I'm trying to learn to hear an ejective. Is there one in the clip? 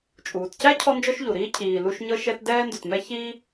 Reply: yes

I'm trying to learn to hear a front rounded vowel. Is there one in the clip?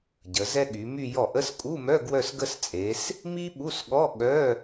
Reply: yes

